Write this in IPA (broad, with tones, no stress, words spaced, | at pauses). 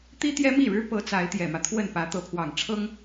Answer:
t̪i˥ t̪jɛ˥mi˥˩ɻɻ̩˥pɤ˧˥ t͡sa˧˥ɪ̯t̪jɛ˨˩mä˦ t̪ʰwə˥˩npä˧˥ t̪ɤ˧˥pʰwɑ˨˩ŋʈ͡ʂʰɤ˥ŋ